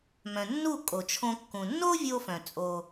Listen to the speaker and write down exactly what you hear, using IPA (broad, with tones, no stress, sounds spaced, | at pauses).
m œ̃˩ nː u˥˩ kʼ o˩ t͡ʃʰ õ˧ kː ũ˩ nː o˥ vʲ o˧ f œ̃˩ t͡sʼ o˩